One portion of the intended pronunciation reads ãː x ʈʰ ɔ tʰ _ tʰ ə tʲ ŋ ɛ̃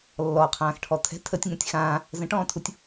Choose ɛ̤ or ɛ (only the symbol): ɛ̤